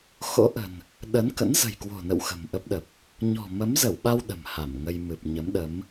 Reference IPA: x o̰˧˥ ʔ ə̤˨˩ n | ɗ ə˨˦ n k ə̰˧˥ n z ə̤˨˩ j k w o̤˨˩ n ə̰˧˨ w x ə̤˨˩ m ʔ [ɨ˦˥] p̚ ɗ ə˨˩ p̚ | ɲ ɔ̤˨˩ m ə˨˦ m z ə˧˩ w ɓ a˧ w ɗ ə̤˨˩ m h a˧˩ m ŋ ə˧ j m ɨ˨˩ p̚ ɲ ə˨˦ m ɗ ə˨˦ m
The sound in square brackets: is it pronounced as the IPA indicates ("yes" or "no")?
no